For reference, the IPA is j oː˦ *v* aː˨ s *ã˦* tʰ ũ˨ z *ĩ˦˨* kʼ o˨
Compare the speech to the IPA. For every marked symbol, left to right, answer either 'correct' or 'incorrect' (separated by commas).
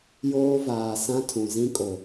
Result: correct, correct, incorrect